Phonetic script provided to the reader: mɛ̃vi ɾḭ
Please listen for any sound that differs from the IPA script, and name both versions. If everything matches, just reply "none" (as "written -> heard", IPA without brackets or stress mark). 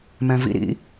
i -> ḭ